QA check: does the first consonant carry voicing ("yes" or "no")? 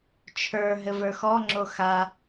no